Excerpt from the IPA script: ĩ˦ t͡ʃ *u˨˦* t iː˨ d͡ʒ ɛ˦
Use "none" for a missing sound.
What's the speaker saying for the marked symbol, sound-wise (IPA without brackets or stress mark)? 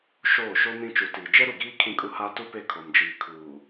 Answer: u˨˦